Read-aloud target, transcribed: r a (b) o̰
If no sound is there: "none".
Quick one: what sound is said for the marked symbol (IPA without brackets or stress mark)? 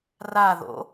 ð